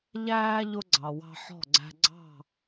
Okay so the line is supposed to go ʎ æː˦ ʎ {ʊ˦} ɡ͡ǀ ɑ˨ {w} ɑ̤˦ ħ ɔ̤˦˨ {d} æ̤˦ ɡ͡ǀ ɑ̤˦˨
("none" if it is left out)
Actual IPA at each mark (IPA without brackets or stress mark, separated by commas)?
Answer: ʊ˦, w, ɡ͡ǀ